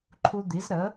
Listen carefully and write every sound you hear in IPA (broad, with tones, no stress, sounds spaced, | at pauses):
ǃʰ u˧ d̪ i˩˥ z ɾ ə˩˥